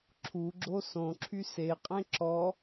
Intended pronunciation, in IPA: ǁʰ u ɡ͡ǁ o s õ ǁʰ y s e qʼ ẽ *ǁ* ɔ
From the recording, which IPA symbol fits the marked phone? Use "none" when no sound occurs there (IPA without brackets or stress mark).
ǁ